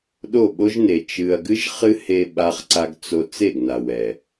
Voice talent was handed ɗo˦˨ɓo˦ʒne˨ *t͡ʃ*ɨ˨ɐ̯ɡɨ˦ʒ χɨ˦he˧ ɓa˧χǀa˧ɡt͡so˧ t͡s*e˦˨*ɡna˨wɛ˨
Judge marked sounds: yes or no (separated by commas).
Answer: yes, yes